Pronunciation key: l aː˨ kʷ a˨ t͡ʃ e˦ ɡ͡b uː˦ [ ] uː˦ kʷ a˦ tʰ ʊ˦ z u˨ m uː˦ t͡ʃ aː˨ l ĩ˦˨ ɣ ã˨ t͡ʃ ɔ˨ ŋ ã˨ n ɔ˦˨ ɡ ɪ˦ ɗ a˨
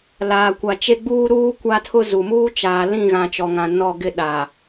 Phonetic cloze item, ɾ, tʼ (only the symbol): ɾ